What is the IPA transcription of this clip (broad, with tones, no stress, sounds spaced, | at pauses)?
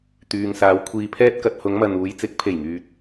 t̪ yː˨ ŋ s aː˨˧ w kʷʰ iː˨ pʰ ɛː˧ t̚ k ɐ˨ t̚ h ʊ˨˧ ŋ m ɐ˨ n uː˨˧ j t͡s ɪ˨˥ k̚ pʰ e˨˩ j ŋ yː˨ t̚